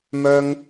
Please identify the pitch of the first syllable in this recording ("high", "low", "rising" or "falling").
high